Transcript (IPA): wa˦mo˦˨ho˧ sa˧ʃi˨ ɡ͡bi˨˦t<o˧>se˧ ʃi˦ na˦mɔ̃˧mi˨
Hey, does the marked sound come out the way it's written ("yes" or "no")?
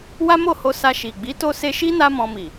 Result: yes